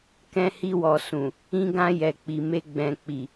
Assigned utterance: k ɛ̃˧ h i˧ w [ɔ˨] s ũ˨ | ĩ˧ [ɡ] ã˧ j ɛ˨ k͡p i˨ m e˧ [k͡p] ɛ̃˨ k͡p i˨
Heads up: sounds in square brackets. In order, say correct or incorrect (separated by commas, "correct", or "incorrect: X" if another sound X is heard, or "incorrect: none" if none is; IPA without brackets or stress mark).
correct, correct, incorrect: ɡ͡b